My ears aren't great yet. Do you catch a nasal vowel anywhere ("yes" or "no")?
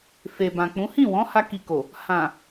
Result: yes